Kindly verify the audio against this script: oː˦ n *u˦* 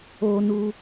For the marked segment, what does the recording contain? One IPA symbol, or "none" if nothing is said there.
u˦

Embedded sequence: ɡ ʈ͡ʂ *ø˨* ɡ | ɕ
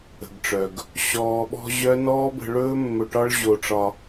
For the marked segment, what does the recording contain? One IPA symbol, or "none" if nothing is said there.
œ˨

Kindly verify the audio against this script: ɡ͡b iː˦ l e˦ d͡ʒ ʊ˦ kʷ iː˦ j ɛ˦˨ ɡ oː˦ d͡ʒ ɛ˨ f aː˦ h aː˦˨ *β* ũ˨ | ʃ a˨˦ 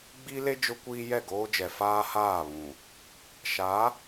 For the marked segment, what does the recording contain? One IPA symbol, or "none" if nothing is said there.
β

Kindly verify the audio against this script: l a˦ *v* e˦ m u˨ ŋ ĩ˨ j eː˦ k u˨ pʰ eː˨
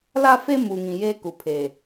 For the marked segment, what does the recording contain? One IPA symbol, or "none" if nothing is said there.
f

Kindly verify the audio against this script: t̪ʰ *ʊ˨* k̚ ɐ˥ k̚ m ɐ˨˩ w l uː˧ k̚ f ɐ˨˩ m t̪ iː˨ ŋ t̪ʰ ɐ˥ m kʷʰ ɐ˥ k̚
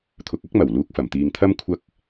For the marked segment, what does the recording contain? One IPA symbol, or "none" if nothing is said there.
ʊ˨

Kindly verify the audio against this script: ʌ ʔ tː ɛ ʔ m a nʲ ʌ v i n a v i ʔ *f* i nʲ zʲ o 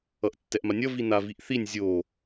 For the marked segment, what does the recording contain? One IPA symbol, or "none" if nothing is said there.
θ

